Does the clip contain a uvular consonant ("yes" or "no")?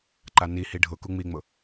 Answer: no